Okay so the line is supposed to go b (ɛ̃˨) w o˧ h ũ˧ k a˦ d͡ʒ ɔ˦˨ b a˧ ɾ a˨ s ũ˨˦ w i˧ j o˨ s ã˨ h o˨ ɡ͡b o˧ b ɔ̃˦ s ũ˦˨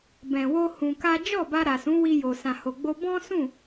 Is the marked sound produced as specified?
yes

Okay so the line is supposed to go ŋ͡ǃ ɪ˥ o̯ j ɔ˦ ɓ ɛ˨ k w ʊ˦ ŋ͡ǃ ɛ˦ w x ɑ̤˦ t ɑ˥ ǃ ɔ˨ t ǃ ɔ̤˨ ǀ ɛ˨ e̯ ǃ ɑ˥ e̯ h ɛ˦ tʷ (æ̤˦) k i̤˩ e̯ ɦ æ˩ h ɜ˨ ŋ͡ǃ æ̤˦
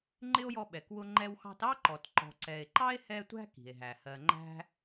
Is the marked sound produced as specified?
yes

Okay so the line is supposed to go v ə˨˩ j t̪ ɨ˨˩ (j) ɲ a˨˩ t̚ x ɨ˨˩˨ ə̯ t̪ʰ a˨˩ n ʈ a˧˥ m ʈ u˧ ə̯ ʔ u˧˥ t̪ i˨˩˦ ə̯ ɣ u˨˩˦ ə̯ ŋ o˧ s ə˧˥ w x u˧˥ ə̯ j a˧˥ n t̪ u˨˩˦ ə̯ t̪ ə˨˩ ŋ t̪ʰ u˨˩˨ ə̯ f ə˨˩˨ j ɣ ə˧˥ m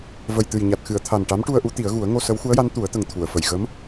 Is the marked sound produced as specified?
yes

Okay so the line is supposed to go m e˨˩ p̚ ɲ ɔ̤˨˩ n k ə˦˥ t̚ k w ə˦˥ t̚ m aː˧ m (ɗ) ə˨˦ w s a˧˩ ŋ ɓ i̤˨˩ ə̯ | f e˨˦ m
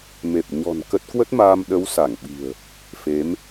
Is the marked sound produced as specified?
yes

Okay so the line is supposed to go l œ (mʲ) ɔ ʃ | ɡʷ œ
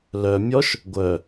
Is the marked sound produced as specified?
yes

